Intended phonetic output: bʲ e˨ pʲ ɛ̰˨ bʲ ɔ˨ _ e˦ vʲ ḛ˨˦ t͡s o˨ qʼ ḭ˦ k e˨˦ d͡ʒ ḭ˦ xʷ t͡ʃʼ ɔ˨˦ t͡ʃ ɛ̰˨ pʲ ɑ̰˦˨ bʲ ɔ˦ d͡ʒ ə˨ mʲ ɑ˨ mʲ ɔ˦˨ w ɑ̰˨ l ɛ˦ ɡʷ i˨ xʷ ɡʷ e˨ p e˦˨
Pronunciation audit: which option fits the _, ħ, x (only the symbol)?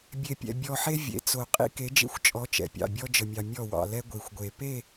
ħ